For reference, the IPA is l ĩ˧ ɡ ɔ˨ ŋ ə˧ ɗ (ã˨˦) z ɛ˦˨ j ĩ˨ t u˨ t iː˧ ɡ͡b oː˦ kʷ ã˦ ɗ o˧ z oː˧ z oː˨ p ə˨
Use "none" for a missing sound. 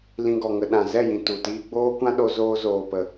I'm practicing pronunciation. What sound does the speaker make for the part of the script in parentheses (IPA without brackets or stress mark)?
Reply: ã˨